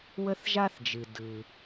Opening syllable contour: high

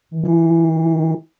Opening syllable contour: high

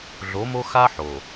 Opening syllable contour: rising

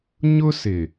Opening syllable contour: high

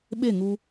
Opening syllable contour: falling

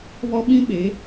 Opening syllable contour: high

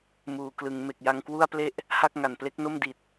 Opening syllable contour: low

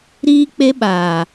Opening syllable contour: high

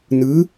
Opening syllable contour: rising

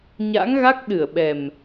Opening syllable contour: rising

